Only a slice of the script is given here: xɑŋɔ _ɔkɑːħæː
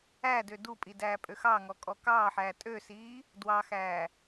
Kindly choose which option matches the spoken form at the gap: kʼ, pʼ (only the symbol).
kʼ